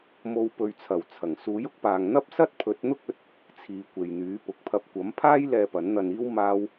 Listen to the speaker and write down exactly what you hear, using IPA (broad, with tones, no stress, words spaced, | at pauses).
mo˨˧w pɵ˨ɥt͡sʰɐ˨˩wt͡sʰɐ˨˩ŋ suː˨˥jʊ˥k̚paː˨ŋ n̪ɐ˥p̚sɐ˥t̚ pʰɵ˨˥t̚n̪ʊ˥k̚ɵ˨˥t̚ | t͡sʰiː˨˧kʷe˨jn̪yː˨˥ pʊ˨k̚pʰɐ˧p̚ kʷɐ˨˥mpʰaː˥j lɛː˧pɐ˨˥nn̪ɐ˧niː˥w maː˥w